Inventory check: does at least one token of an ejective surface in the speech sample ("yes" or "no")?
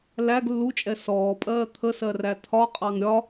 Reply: yes